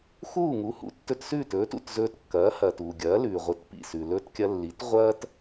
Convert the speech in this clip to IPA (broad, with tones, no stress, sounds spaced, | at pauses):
x uː˥˩ ŋ u˩˥ h ṵ˧ tː ɵ˧ t s ʉː˥˩ t ɵː˩˥ t ṵ˥˩ t z ɵː˧ t kː ɐː˩˥ h ɐː˩ t uː˩ ɡʲ ɐː˩˥ l ʉː˩ ʁʷ ɨ˩˥ t p ḭ˥˩ s ʉ˩ l ɵː˧ t kʲ ɐ˧ lː i˩˥ t ʁʷ ɐː˥ t